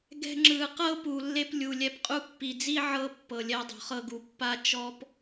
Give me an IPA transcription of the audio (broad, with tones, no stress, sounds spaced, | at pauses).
ɡ ɛ̤˧ ŋ͡ǁ ɯ˨ q ɤ˦ p u˨ lː e˧ p lʲ u˨ lʲ ɛ˧ p qʼ u˧ pː i˨ d͡z i˦ ʕ ɤ˦ pː ɤ˨ lʲ ɛ˧ dˤ o̤˨ χ ɤ˧ ɡ u˨ pː a˦ t͡ʃ ɔ˦ p